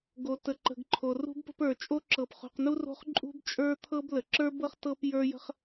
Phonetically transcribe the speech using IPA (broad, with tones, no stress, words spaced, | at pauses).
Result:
ɡo˨tə˨ǃə̤˨ɡ ǃʰo˨ rṳ˦bpə̤˦pə˞˨ t͡ʃʼo˦ǁɤ˨pχṳ˨qnu˦ ro̤˦χǃʼṳ˦bt͡ʃʼə˞˦t̪ʰɤ˦b lə˨ǁə˞˦bɤ˦χ tɤ˦p jə˞˦jə̤˦χ